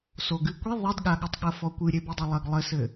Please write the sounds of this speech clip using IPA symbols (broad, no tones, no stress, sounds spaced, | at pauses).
s o ɡ ɨ kʷ i ðˤ i d ɠ a ɠ ɘ tˤ ɠ ɐ f ɔ kʷ ɨ ɾʲ e b i dˤ e lˠ ɐ ɡ lˠ ɘ s ɘ